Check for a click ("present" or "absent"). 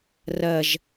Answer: absent